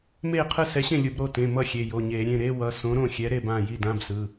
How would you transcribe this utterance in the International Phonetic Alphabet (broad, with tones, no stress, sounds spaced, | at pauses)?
m eː˥˩ qʰ ɯ˥˩ s ɛ˨˥ ɕ ẽ˥˩ lʲ u˧˩˧ b ɾ o˩˧˩ t ẽ˩˧˩ m ʌ˥˩ xʲ e˩˧˩ j o˩˧˩ ɲ eː˧˩˧ ɾʲ ẽ˩˧˩ ɾ e˧˥˧ w ʌ˩˧˩ s õ˨˥ ɾ õ˥˩ xʲ ɛ˨˥ ɾ e˥˩ b ã˩˧˩ j i˥˩ d ã˧˥˧ b s ɯ˩˧˩